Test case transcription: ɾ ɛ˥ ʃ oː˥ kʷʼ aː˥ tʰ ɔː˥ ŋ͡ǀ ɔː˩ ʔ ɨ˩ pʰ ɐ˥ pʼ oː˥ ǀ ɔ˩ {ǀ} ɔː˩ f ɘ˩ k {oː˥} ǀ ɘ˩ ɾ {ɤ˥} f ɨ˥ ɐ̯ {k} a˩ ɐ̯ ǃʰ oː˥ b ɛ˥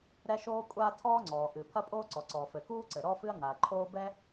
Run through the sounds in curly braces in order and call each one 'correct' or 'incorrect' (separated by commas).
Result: correct, incorrect, incorrect, incorrect